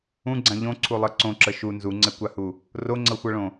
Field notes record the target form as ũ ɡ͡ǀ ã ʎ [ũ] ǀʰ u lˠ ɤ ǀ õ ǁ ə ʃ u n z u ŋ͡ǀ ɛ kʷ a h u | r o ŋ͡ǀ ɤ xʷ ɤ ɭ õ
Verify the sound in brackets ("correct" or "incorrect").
incorrect